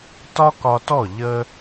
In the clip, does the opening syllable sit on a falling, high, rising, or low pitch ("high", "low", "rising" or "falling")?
high